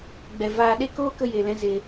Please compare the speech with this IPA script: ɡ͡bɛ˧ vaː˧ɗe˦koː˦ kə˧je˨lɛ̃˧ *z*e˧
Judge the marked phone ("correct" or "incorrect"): correct